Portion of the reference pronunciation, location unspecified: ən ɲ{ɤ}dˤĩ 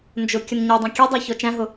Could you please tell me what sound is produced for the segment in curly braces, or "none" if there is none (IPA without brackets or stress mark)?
ə˞